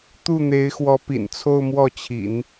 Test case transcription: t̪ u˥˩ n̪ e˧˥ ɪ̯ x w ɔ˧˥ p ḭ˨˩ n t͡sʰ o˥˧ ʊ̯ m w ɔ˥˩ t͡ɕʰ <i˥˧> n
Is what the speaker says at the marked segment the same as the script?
no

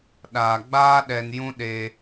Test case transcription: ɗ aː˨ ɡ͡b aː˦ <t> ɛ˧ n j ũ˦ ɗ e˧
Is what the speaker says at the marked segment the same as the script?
no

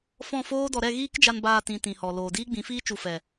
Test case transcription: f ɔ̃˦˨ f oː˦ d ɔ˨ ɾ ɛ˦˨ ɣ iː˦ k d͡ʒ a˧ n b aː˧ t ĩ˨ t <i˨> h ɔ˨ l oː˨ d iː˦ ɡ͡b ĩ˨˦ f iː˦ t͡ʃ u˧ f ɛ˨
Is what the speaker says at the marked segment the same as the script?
no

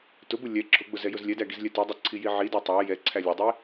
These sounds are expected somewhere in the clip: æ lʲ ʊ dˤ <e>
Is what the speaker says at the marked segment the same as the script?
no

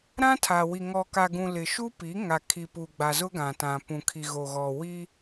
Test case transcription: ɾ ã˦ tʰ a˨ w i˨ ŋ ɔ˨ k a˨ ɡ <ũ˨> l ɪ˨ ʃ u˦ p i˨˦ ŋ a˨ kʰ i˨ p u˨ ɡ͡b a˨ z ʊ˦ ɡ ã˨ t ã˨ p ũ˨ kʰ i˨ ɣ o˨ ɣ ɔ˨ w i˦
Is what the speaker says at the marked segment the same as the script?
yes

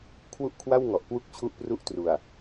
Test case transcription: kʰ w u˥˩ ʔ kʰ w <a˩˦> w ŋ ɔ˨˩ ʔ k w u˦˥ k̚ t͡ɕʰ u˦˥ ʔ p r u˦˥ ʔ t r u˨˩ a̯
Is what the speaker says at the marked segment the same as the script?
no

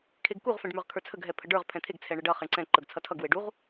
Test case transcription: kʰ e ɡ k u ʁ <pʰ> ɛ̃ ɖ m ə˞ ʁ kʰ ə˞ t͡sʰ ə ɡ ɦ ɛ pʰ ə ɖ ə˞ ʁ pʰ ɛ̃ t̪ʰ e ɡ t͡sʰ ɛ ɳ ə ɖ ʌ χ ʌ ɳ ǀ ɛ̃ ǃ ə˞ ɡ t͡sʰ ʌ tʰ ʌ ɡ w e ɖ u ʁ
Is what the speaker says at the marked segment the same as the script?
no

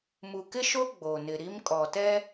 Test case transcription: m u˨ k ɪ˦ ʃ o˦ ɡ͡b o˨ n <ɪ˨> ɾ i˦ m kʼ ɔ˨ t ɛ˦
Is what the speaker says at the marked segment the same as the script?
yes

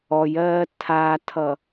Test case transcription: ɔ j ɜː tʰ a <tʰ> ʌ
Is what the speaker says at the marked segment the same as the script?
yes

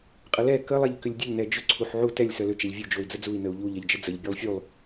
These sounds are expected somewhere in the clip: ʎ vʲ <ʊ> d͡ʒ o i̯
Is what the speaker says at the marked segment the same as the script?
no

